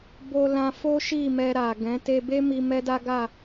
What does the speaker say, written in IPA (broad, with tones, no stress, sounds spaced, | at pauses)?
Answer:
b o˧ l ã˧ f o˦ ʃ i˦˨ m ɛ˧ ɾ a˨ ɡ ɛ̃˨˦ t e˧ b e˦ m i˧ m ɛ˦ d a˦ ɡ a˦˨